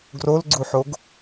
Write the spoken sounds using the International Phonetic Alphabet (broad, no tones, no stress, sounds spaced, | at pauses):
ɡ r o l ɡ͡ǀ u ħ o ɡ